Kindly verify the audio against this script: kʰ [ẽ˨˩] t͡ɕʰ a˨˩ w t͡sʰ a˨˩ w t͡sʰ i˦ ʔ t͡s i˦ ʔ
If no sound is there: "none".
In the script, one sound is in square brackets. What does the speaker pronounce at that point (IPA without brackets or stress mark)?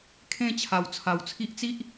ẽ˥˧